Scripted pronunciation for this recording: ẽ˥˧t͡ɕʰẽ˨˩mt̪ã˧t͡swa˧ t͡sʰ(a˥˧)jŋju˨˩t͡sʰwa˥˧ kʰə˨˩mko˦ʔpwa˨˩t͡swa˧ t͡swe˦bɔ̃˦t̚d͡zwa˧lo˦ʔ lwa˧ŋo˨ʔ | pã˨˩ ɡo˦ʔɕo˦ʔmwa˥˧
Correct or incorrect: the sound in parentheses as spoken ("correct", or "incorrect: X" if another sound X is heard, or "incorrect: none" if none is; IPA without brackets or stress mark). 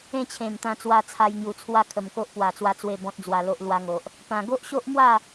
incorrect: a˧